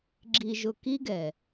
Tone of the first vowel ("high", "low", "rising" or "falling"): low